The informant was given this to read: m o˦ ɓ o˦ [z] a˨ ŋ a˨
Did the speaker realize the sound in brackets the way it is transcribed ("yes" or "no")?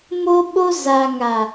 yes